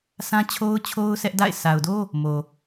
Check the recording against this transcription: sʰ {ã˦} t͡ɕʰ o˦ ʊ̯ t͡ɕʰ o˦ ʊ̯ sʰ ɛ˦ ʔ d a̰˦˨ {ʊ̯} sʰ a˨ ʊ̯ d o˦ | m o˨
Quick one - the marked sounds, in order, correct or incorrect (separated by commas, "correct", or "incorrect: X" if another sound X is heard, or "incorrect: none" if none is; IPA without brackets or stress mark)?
correct, incorrect: ɪ̯